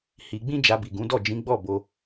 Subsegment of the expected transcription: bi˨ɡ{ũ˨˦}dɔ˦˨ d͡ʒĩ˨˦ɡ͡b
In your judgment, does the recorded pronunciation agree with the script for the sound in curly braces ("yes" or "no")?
yes